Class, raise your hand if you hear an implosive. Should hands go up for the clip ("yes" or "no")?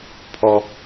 no